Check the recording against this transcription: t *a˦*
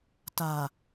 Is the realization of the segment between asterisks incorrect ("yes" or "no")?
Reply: yes